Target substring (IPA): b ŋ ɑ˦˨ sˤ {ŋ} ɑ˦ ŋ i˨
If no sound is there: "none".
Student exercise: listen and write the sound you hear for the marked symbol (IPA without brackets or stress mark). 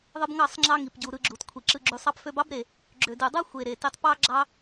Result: ŋ͡ǁ